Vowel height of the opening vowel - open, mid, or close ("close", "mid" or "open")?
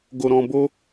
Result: mid